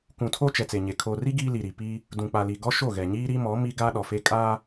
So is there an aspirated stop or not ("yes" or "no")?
yes